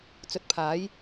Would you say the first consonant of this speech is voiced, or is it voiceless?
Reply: voiceless